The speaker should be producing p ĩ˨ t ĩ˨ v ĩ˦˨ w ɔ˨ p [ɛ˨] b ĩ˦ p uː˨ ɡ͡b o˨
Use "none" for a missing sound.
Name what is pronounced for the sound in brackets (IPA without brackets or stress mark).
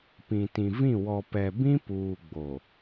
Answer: ɛ˨